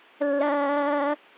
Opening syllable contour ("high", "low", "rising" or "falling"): low